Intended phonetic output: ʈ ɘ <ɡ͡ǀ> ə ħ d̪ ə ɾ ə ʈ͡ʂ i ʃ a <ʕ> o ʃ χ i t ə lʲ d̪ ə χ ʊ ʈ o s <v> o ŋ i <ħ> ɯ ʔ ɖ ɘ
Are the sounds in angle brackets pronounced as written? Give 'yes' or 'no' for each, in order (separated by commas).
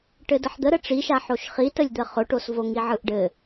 no, no, yes, no